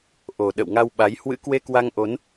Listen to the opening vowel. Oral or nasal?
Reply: oral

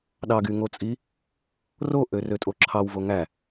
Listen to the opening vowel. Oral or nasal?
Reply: oral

